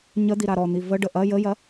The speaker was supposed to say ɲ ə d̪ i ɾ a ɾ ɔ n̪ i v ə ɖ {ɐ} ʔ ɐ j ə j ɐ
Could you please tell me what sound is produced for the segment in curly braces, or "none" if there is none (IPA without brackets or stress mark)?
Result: ə